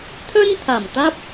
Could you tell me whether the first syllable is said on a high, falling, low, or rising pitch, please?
high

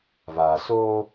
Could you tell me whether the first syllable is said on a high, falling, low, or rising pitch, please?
low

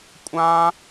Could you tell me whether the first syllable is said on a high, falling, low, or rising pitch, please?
high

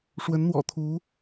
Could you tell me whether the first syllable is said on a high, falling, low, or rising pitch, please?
rising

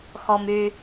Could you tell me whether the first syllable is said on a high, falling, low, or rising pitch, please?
low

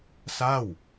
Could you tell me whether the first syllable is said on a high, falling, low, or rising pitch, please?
falling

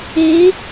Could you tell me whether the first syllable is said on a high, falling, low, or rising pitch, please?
rising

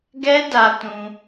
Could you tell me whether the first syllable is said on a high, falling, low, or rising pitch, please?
high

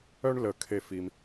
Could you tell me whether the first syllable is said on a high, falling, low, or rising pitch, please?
high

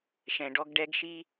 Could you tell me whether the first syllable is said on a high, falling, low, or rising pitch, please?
low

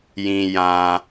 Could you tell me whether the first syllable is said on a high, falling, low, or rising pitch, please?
low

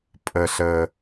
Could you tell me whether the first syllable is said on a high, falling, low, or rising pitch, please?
low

